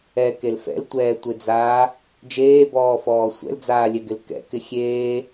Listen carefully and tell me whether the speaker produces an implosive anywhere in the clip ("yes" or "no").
no